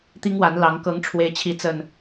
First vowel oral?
yes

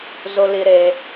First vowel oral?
yes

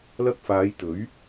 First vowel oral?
yes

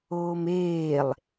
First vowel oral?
yes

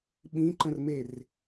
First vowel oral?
no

